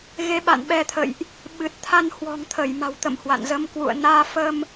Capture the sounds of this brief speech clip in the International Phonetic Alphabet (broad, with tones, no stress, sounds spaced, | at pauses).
ɣ e˨˦ ɓ a̰˧˨ n ɓ ɛ˧ t̪ʰ ə̰˧˨ j ʔ | ɓ ɨ˨˩ t̚ t̪ʰ a˧ n h w ɔ̤˨˩ ŋ t̪ʰ ə˧˩ j m a̤˨˩ w t̪ ə̰˧˨ m h w a̰˧˨ n z ə˨˦ m k w ṵ˧˨ ə̯ n aː˧ f ə˧ m